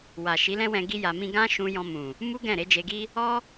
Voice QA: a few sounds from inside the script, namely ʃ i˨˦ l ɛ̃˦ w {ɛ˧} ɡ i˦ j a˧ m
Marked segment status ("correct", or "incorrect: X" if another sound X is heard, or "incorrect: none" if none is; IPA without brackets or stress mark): incorrect: ɛ̃˧